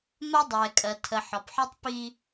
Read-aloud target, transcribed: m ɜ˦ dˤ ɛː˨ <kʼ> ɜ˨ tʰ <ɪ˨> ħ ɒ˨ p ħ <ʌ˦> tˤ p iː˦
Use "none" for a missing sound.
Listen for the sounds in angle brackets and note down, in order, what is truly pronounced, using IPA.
kʼ, ə˨, ɒ˦

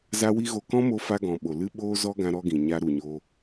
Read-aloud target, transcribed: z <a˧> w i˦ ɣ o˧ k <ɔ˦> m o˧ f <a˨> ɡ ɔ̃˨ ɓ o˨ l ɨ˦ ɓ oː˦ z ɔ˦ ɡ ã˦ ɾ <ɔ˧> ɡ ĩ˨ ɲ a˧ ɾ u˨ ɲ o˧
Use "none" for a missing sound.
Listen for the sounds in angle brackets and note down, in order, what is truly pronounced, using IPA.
a˦, ɔ̃˦, a˧, ɔ˦

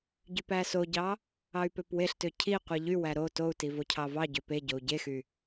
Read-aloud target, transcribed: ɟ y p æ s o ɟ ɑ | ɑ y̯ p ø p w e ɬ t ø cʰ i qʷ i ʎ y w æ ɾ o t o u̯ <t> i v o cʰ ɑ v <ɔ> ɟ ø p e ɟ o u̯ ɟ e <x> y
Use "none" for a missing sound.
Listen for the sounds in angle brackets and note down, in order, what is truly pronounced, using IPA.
t, ɑ, x

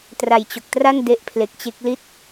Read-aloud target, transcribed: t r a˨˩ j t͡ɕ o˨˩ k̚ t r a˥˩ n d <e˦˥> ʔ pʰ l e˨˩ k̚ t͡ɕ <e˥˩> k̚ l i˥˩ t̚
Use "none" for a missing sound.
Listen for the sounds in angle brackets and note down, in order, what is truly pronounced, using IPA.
e˦˥, e˦˥

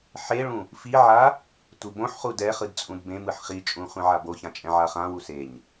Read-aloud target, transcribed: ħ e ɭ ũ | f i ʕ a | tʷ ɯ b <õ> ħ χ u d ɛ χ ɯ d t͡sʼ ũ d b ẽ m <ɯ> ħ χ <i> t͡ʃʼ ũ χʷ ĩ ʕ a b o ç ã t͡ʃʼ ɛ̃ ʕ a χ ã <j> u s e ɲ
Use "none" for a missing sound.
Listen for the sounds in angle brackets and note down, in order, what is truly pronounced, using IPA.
õ, ɯ, i, w

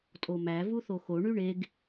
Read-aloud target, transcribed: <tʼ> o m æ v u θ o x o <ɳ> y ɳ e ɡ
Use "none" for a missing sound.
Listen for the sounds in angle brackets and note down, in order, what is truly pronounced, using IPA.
tʼ, ɳ

